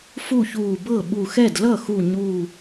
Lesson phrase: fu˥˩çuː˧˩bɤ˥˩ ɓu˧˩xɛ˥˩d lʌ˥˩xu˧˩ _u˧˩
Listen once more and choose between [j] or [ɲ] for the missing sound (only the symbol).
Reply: ɲ